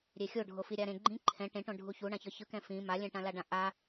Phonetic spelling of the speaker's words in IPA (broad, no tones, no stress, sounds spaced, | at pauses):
ɾʲ e xʲ o ɖʱ o f i ɾʲ a ɾ ẽ ɡ͡ǃ ĩ ǃʰ ɛ̃ ʈ ẽ ʈ õ ɖʱ u ç u ɳ ã ç ʌ ç ɯ k ɛ̃ f ĩ m a lʲ ɛ̃ ʈ ã l a ɖ ã ʔ a